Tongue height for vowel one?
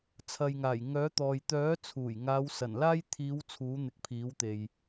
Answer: low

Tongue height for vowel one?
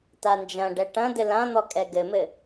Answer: low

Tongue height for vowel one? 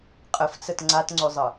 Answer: mid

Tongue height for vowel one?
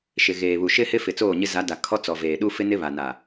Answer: high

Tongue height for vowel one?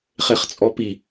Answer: mid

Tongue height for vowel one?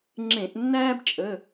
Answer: mid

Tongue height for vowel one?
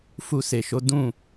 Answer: high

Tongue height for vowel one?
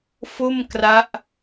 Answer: mid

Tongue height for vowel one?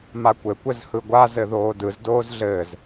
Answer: low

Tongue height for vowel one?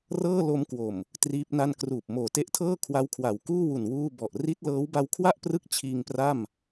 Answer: mid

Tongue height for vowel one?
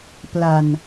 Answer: low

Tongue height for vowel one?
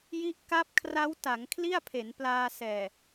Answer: high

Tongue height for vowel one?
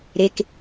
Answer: mid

